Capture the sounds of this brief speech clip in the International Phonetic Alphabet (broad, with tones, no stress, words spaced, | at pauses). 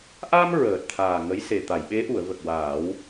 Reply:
ʔa˧m ɹəː˨˩t̚t̪ʰaː˨˩ ŋə˧˥jse˨˩ t̪a˨˩˨j ɓe˧˥ʔu˨˩˨ə̯ və˨˩k̚waː˨˩˦w